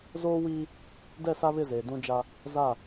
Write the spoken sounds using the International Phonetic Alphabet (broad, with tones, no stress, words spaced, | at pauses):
zoː˦wiː˦ | dɛ˦˨sa˦βɪ˦˨zeː˨ dũ˦d͡ʒa˦ | za˦˨